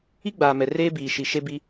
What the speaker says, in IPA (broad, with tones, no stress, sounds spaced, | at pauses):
i˦ ɡ͡b aː˨ m ɛ˨ r eː˦ b iː˨ ʃ i˨ ʃ e˦ b i˦